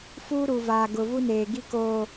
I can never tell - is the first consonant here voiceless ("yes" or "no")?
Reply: yes